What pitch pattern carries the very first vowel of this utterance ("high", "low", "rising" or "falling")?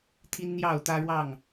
high